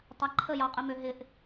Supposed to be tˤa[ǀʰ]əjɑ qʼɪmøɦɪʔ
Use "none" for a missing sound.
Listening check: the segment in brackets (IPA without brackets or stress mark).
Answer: ǃʰ